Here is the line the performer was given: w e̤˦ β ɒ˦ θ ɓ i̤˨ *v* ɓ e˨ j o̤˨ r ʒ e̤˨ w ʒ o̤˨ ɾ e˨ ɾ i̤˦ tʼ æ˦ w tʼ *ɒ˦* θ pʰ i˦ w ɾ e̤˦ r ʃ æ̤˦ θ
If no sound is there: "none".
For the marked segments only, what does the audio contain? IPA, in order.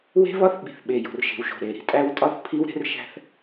θ, ɒ˦

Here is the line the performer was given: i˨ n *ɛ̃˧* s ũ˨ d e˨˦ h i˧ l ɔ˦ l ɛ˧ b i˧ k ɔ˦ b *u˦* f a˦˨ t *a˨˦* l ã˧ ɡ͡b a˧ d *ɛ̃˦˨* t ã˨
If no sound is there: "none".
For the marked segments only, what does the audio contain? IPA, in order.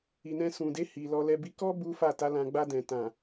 ɛ̃˧, u˦, a˨˦, ɛ̃˨

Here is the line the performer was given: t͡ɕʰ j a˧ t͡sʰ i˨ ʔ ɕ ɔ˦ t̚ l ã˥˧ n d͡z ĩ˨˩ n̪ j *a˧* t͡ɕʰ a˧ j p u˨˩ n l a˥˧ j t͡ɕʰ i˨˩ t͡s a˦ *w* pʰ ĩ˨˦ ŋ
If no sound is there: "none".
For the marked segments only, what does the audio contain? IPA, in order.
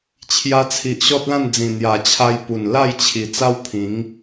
a˨˩, w

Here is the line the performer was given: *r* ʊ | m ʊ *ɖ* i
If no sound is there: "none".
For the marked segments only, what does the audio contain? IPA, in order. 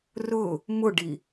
r, ɖ

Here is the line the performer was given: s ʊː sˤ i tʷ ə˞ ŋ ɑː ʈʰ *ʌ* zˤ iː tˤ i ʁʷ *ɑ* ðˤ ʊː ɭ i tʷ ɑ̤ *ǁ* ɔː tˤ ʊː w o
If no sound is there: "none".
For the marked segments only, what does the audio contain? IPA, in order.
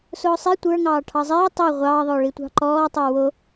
ɑ, ɑː, ǃ

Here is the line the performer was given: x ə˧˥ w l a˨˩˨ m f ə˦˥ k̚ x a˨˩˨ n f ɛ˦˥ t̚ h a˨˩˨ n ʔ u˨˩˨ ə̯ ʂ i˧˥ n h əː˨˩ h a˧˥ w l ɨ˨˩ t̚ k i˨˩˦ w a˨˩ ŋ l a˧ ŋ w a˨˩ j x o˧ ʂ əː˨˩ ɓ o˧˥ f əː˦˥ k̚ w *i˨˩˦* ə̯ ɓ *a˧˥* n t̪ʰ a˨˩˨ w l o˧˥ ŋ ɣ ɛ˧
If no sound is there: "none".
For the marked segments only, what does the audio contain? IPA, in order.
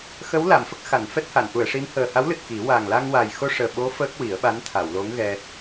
i˨˩˦, a˧˥

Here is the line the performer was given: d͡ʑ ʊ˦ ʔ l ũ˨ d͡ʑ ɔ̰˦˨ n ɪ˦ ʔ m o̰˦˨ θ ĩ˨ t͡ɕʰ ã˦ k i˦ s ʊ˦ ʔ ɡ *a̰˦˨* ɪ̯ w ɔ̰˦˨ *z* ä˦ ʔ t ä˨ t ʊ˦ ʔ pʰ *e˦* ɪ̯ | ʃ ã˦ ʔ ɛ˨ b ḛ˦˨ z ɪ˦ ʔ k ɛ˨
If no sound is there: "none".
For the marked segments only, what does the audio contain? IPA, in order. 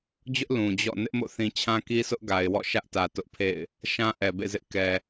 a˨, ʃ, ḛ˦˨

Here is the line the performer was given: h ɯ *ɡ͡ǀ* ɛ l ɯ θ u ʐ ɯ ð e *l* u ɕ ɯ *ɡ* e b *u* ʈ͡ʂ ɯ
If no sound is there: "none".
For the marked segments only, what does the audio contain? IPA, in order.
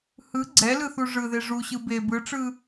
ɡ͡ǀ, ʐ, b, ɯ

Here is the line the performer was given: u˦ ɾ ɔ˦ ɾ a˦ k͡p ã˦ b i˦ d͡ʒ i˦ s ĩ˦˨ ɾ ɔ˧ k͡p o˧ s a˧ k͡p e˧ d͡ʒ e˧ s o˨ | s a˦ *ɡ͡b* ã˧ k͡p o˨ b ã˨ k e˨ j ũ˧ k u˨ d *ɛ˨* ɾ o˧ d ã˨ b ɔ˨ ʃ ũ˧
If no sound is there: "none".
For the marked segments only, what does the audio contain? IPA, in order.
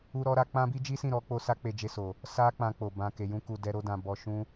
k͡p, ɛ˧

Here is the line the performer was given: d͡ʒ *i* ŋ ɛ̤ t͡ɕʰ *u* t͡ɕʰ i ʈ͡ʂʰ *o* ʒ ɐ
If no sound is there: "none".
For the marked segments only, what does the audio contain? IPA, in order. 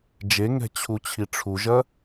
e, u, u

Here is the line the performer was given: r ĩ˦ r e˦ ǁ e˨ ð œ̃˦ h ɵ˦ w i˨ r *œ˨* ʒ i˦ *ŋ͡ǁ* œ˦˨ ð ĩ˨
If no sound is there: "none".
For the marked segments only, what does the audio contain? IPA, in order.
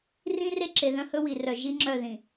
œ˨, ŋ͡ǁ

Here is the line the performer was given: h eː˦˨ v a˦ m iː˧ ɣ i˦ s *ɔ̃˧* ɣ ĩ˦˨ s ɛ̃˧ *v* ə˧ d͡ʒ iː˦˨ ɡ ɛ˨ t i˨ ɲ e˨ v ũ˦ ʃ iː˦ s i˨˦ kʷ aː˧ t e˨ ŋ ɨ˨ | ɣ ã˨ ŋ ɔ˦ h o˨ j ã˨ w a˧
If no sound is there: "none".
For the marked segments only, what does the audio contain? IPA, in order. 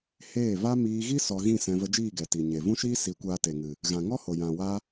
ɔ˧, v

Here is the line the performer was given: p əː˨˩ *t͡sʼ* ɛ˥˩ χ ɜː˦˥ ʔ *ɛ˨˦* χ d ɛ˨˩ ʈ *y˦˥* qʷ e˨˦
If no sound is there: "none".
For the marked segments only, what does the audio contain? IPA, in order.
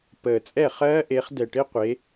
t͡sʼ, e˨˦, ɪ˦˥

